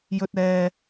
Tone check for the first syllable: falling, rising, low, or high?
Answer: high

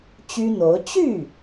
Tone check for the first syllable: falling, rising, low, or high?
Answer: high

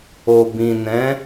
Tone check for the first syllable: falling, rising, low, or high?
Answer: low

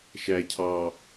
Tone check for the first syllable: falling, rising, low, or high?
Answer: low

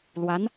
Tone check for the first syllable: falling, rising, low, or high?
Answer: rising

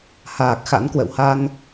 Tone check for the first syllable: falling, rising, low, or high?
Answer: low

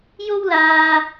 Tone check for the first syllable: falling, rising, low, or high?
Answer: high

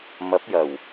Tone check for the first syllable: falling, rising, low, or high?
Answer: rising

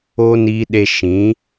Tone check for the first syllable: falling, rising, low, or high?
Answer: high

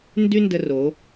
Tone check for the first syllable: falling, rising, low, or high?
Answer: high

